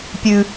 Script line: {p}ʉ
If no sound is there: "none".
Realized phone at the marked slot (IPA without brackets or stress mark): pʲ